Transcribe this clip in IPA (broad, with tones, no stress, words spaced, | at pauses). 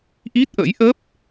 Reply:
ʔi˦˥t̚ʔə̰˧˥jʔə˦˥p̚